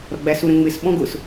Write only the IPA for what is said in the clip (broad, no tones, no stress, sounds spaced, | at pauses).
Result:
ɾ ɔ ɡ͡b æ s u ɾ ə̃ ŋ͡m ɪ s ɓ ɔ̃ ɡ ʊ s